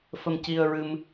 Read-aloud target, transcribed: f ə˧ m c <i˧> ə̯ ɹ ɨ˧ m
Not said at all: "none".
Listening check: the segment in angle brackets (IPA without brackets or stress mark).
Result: i˧